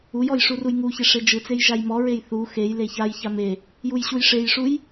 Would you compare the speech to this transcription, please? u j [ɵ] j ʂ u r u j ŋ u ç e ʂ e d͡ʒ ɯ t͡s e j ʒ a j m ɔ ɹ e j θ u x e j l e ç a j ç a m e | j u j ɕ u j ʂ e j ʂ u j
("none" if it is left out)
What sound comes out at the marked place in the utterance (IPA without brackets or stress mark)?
ɔ